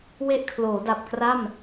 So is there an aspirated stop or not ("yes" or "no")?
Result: yes